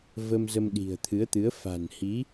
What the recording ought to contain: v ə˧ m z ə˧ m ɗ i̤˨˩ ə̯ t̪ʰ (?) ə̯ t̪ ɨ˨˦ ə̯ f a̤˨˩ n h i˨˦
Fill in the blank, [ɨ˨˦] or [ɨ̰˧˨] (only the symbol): ɨ˨˦